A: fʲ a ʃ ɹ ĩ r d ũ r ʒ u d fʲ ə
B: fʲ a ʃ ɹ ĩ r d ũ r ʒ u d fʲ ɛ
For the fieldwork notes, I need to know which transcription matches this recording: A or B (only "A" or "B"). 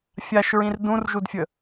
A